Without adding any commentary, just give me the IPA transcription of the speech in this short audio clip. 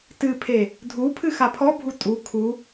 tɨpʰe | dʱupʰɨ xapʰɔbʱu tʼu kʰu

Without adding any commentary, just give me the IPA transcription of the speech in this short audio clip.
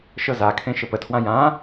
ʃɤzakʰẽ ʃəpətʰwã jã

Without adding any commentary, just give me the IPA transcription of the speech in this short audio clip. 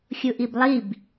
xʲuʔiblˠib

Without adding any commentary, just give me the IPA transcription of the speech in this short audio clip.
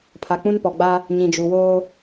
pʰa˨k͡pũ˦npɔ˨ɡ͡ba˦ | ɲĩ˨d͡ʒu˨woː˦

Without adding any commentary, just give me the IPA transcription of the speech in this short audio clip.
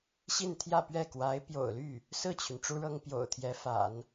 ɕi˥˧nt̪ʰjä˥˧pɥɛ˥˩ kwa˧˥ɪ̯ pjo̰˨˩ʊ̯ly˥˩ | sɹ̩˥˩t͡ɕʰy˩n ʈ͡ʂu˥ɻɤ˥ŋ pjo̰˨˩ʊ̯t̪ʰjɛ˧˥fa̰˨˩˦n

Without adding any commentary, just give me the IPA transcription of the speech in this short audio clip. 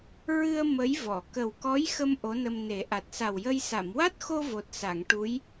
ɹɨ˧ə̯ mə˧˥jvɔ˨˩˨ kə˨˩wkɔ˧˥jxə˧m ʔo˧˥nə˧mne˨˩˦ ʔa˨˩t̚sa˨˩wjə˧j sa˨˩˨mwa˦˥t̚xo˧ vo˨˩t̚sa˨˩˨ŋʈu˧˥j

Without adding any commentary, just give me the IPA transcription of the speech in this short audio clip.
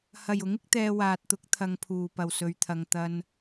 hɐ˨˩jʊ˨˥ŋɪ˧k̚t̪ɛː˨ waː˨t̚t̪ʊ˨˥k̚ t̪ʰɐ˨˧ŋpʰuː˨˩pɐ˨˩w sɵ˧ɥt̪ʰɐ˧ŋ t̪ɐ˧n

